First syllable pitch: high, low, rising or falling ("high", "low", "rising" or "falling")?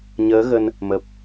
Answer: rising